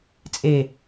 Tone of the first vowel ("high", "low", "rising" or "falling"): low